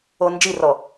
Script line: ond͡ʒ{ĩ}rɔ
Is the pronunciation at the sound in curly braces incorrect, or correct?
incorrect